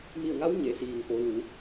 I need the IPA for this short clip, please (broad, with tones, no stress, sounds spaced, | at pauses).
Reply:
m i˧˩ ə̯ ŋ a˧˥ w ɲ e˩˧ s iː˩ ŋ p o˩˧ l u˩˧